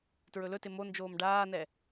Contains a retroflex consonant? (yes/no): yes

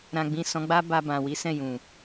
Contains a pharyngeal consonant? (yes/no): no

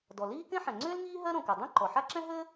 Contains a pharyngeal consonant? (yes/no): yes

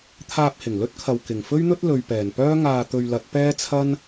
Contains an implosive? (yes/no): no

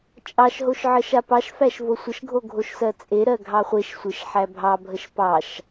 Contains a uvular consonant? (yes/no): yes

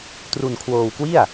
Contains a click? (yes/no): no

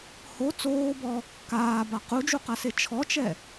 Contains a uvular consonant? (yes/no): yes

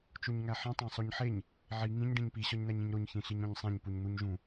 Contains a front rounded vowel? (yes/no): no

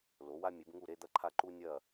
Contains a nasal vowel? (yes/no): no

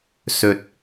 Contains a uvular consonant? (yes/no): no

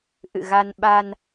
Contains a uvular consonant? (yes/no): no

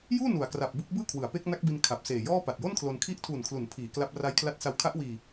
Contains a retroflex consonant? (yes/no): no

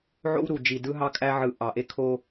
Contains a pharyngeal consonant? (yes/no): yes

